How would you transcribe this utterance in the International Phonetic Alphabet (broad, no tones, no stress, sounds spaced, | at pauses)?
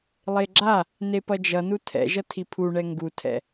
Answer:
lˠ e ɡ͡ǁ a | n e p ʌ d͡ʒ ʌ n u tʰ ɛ̰ ʒ ʌ tʰ i pʰ u ɳ ɛ ŋ ɡ u tʰ ɛ̰